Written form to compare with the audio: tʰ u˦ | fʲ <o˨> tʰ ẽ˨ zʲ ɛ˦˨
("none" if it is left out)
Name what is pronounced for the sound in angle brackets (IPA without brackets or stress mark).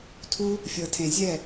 ɤ˨